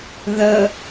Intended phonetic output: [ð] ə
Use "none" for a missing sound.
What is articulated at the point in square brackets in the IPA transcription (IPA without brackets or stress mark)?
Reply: ð